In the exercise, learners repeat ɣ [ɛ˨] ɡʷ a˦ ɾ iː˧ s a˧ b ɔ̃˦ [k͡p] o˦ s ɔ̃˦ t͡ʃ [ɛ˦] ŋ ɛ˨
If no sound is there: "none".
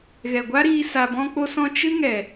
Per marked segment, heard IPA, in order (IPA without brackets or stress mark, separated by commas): ɛ˨, k͡p, ɨ˦